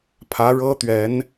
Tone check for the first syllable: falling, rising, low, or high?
rising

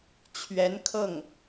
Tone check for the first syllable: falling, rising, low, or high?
rising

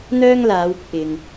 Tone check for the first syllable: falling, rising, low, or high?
high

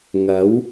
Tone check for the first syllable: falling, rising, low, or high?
rising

